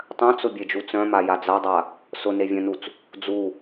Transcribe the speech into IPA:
tˤ œ̃ t͡s ʊ bʲ e d͡ʒ u t͡s œ̃ m a j a d͡z a dˤ a | s ʊ n e vʲ œ̃ n u t͡s | d͡z u

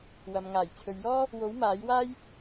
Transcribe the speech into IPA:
w ɐ˨ m ŋ aː˨˩ j t͡sʰ ɵ˨ ɥ j ɔː˥ | w o˨˥ w m aː˨˥ j w aː˥ j

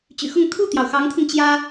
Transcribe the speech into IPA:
t͡ɕ y̰˨˩ x ʊ˥˧ ŋ t̪ʰ u˥˩ t̪ j ɑ˩ ʊ̯ x ɑ˧˥ ŋ t̪ʰ ʊ˧ ŋ t͡ɕ j ä˥

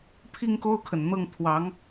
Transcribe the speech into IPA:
pʰ i˥˧ ŋ k o˥˩ ʊ̯ kʰ ə˩ n n̪ ɤ˥˩ ŋ t̪ʰ w ɑ˧˥ ŋ

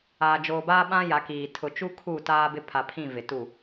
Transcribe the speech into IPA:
aː˨ d͡ʒ oː˨ b aː˦ ɓ ã˦ j a˨˦ k iː˨ tʰ ʊ˨ t͡ʃ u˦ kʰ uː˦˨ t aː˦ b ɪ˦ pʰ a˨ pʰ ĩ˦˨ v ɪ˨ t u˦˨

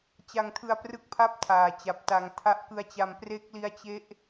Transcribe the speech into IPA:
t͡ɕ a˧ ŋ tʰ ɯ˧ a̯ p r ɯ˦˥ k̚ pʰ a˥˩ p̚ tʰ aː˨˩ t͡ɕ a˨˩ p̚ t a˧ ŋ tʰ a˦˥ ʔ k ɯ˦˥ a̯ t͡ɕ a˧ m p r e˦˥ k̚ l i˦˥ a̯ t͡ɕ e˦˥ ʔ

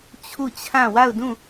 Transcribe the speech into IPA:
t͡ɕʰ u˦˨ t͡ɕʰ ã˦˨ w a˦˨ ʊ̯ d ũ˦˨

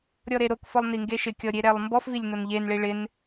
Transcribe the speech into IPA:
ɾʲ ɔ ɾ e ɾ o k f ɔ lˠ n i ŋ ɡ e ʃ ɪ kʲ ɔ ɾʲ e ɾ ɛ lˠ m b ɔ f v i lʲ n o n ʎ e n ɭ i ɭ ɪ n

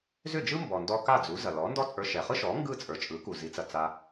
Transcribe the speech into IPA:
z ʏ˥˩ d͡ʒ ɯ˥ m b ɔ˩ n d ɔ˧ k a˥˩ d͡z u˩˥ z ɐ˩ l ɔ˩˥ n d ɔ˥ t͡sʼ ə˞˧ ʃ ɛ˩ χ ɯ˥ ʃ ɔ˩˥ ŋ ɡ ɯ˥˩ t͡sʼ ə˞˩ t͡ʃʼ ɯ˩˥ k u˩ z i˩˥ t͡s ɐ˩ t͡s a˧

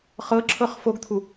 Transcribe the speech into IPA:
χ ɤ ǁʰ ɤ χ f o ɡ t̪ʰ u

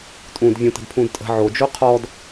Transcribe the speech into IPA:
tʼ ũ d vʲ ũ t ə̤ d pʰ ũ d tʼ ə̤ ʕ o d͡ʒ o qʰ ɔ d

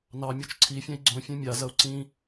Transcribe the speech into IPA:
n ɑ mʲ o t͡ʃ ǀʰ i fʲ ɛ̃ i̯ ɡ͡ǀ õ fʲ ɛ̃ mʲ a z ɐ u̯ ǀ ĩ

